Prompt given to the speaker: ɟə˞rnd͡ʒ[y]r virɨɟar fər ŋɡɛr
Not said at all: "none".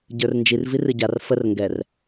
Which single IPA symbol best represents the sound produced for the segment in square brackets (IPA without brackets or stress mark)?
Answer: i